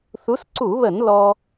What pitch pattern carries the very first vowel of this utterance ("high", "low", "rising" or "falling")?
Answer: rising